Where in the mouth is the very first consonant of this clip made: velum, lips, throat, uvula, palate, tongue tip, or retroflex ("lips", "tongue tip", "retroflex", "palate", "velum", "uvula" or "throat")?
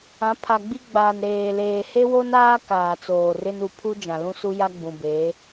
lips